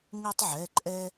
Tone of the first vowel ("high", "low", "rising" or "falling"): high